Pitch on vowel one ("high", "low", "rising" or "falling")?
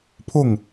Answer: falling